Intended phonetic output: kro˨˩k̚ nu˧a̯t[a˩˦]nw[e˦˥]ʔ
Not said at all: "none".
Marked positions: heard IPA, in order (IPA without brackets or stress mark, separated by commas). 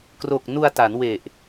a˩˦, e˨˩